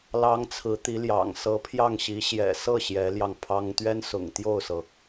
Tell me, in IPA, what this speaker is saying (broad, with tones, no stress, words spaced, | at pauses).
lɑ˧˥ŋ t͡sʰɹ̩˧˥t̪i˧˥ljɑ̰˨˩ŋ sɤ˧˥pʰjɑ˥˩ŋɕi˧˥ ɕjɛ̰˨˩sɤ˥˩ ɕjɛ˧˥ljɑ˧ŋpʰɑ˥ŋ t̪ɥɛ˥nsʊ̰˨˩ŋt̪jo˥˩ʊ̯sɤ˩